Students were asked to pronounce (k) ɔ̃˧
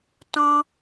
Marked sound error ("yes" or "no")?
yes